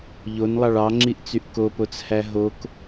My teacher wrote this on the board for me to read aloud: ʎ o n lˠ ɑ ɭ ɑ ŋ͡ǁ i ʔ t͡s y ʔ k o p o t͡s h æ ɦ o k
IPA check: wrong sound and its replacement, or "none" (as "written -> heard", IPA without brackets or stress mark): none